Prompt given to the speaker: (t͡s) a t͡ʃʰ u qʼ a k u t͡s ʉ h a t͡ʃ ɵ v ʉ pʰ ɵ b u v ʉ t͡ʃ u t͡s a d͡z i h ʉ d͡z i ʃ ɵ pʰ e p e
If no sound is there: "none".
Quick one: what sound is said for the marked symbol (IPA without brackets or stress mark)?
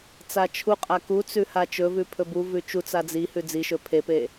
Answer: t͡s